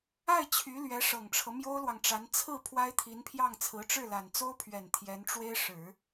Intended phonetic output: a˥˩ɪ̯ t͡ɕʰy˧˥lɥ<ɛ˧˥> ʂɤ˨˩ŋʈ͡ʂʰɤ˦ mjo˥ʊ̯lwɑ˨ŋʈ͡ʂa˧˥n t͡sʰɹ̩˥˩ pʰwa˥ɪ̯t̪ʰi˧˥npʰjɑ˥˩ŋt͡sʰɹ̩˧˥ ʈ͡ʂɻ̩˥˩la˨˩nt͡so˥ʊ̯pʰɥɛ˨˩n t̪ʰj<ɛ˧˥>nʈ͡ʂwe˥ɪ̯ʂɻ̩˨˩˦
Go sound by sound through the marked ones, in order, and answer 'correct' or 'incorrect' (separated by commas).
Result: correct, correct